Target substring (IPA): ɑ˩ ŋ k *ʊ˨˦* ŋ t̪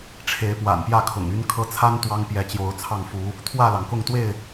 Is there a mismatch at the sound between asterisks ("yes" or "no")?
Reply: yes